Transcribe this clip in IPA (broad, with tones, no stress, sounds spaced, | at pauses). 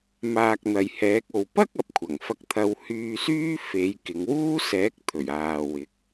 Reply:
m aː˨ k̚ n̪ ɐ˨ j h ɛː˨˥ k̚ o˨ w p ɐ˥ k̚ ɐ˨ p̚ kʷʰ ɐ˨˩ ŋ f ɐ˧ k̚ t̪ʰ ɐ˧ w h yː˧ s yː˥ f e˨˧ j k ɪ˨˧ ŋ w uː˥ s ɛː˨˥ k̚ t̪ʰ ɵ˨˩ ɥ aː˨ w ɪ˨˥ k̚